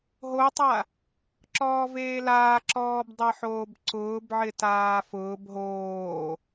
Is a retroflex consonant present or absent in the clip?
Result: absent